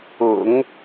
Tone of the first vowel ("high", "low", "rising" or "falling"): low